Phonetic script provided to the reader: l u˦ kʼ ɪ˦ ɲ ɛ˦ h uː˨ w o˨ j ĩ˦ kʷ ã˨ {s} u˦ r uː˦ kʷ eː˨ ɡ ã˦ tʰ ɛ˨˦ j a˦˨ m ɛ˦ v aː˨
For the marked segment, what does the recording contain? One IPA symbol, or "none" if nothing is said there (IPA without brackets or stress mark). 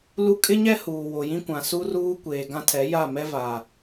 s